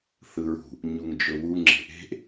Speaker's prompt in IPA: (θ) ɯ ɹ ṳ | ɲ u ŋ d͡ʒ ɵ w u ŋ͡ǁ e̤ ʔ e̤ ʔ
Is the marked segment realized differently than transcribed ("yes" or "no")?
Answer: no